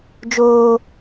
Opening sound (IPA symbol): d͡ʒ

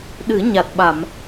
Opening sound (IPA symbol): ɗ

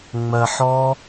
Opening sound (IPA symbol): ŋ͡m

